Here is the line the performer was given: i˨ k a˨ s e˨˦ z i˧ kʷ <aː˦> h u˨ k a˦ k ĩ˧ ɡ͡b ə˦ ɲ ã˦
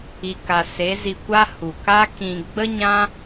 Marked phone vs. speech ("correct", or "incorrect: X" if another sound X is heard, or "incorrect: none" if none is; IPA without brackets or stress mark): incorrect: a˦